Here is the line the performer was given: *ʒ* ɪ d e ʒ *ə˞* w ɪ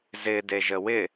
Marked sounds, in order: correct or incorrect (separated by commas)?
incorrect, incorrect